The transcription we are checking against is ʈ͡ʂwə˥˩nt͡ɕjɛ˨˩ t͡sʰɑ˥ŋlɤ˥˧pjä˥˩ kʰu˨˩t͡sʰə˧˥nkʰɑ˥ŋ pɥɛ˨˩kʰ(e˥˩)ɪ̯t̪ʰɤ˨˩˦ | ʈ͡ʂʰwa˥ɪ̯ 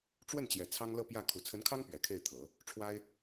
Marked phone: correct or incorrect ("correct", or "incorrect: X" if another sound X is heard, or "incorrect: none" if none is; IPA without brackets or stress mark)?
correct